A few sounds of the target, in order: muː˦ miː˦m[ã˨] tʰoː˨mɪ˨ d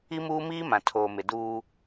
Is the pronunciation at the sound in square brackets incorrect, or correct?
correct